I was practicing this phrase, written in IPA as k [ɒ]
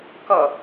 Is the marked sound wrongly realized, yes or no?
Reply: yes